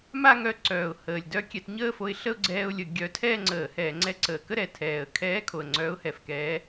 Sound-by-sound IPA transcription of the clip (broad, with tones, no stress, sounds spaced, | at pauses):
m a˥˧ ŋ œ˧ ǀ œː˨˩ ʊ̯ h əː˨˩ lʲ d œ˥˧ kʲ ɛ˧ t ɲ əː˥˧ f o˧ ɪ̯ ɬ ə˥˧ ʊ̯ ɡ͡ǀ ɛː˧ ʊ̯ lʲ ə˧˩˧ ɡʲ œ˧˥ tʰ ɛː˥˧ ŋ͡ǀ əː˧˩˧ h ɛː˧˩˧ ŋ͡ǀ ɛ˧ ǀ əː˨˩ k ə˥˧ ɾ ɛ˨˩ tʰ ɛː˨˩ ə̯ kʰ ɛː˧˥ kʰ o˨˩ ə̯ ŋ͡ǀ œː˧˥ ʊ̯ h ɛ˨˩ f k ɛː˧˥